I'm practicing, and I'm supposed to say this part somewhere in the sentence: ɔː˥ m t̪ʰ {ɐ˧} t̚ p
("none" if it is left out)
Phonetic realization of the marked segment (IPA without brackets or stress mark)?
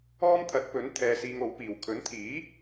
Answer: ɐ˨˥